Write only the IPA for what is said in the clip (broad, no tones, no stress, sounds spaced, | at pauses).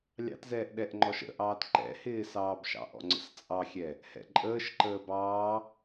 lʲ ɑ̰ t z ɛː ʔ ɗ ɛ ʔ ŋ͡ǃ ɔ ʃ ə̰ ʔ ɑː t ǃ ɛ̰ h ɪː s ɑː b ʃ ɑ̰ ʔ ɔ̰ ŋ͡ǀ ə̰ s t͡sʼ ɑ xʲ ɛ | h ɛ̰ ǃʼ əː ʃ ǃ əː b ɑː